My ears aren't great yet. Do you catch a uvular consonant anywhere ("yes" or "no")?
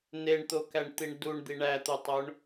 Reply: no